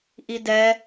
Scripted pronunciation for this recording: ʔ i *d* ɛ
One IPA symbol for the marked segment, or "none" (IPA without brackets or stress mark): d